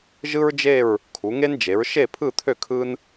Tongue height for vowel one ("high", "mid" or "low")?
high